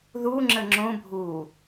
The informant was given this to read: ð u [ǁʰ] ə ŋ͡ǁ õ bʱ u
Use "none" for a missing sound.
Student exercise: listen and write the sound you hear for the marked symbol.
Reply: ŋ͡ǁ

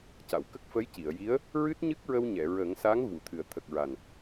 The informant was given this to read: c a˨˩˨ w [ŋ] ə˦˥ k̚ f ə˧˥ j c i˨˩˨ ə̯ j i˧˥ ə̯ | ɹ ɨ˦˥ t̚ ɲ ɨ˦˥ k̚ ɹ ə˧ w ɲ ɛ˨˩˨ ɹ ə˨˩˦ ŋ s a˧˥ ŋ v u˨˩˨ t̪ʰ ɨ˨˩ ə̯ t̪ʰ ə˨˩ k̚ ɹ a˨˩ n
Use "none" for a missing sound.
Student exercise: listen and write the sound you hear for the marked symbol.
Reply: k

